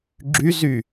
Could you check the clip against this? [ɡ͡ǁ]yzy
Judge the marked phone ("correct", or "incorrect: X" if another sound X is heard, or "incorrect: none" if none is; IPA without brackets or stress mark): correct